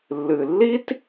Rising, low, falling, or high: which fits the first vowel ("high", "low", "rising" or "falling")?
low